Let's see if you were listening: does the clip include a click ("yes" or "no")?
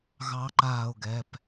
yes